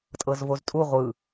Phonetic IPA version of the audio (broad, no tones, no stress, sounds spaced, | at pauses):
tʼ ɤ z v o z tʼ u ʁʷ ɯ